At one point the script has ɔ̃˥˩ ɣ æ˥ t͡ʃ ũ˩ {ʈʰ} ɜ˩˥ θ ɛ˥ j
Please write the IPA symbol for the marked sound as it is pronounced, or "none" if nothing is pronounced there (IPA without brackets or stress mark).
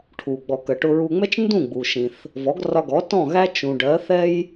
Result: ɖ